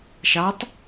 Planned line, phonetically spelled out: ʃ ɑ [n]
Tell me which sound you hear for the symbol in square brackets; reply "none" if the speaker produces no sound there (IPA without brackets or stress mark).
tˤ